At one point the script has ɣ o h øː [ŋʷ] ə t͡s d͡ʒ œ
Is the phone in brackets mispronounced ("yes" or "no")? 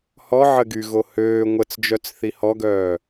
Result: no